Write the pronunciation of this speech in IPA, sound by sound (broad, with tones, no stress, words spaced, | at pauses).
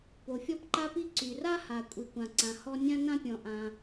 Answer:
po˩fʲɔ˥pǃa˥pi˥ ǀy˩ra˥ ha˩ kʷʼi˩kʷã˩ǀã˩ hɔ˥ nʲã˥nã˥pʲɔ̃˩ ʔã˩